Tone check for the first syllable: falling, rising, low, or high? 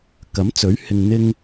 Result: rising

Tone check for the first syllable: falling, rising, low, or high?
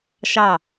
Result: falling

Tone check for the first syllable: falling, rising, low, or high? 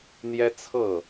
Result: high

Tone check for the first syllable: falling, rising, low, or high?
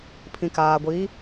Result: low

